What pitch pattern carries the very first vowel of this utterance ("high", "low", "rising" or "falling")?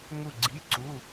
falling